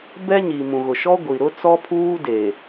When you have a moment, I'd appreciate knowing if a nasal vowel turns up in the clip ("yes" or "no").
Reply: yes